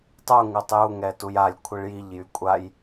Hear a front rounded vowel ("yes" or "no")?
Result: yes